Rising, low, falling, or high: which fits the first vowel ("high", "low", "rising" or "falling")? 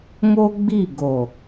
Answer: high